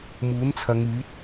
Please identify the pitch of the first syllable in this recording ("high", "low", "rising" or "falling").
rising